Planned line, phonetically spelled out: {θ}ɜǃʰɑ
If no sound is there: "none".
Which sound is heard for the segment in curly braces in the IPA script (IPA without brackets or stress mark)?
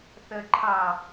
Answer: θ